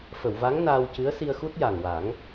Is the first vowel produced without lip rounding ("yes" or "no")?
yes